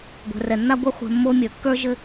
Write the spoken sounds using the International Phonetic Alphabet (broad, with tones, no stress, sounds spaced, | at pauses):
ɡʷ ɛ̤˨ r ɛ˨ nː a˦ ɡʷ ɘ˦ χʷ ɛ̤˧ mː o˦ mʲ ə˞˨ kː ə˞˦ ʒ ɘ˦